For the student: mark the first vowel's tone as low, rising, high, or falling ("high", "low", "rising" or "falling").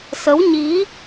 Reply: rising